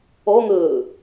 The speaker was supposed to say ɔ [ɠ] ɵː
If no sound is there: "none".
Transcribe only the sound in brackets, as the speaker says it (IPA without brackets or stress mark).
ŋ